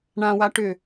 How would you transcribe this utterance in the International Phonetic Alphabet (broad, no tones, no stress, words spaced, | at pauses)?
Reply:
ɳãwa ʈʏ